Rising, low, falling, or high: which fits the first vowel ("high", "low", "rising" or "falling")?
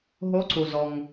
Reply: rising